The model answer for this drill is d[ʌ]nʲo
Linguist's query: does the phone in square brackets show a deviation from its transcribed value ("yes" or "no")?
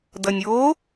no